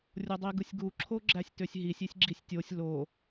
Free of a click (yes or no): no